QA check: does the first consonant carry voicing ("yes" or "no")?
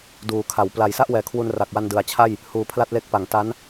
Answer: yes